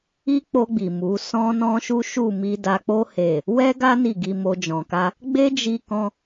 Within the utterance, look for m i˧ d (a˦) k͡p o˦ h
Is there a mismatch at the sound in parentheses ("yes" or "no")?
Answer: yes